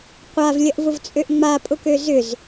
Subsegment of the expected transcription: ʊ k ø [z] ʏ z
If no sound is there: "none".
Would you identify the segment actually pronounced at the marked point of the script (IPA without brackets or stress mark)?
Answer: z